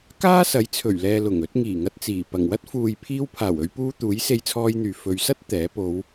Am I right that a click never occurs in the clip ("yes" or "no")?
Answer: yes